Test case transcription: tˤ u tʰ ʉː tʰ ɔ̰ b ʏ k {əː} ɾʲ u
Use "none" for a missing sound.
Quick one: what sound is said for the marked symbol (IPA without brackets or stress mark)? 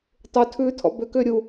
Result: ʏː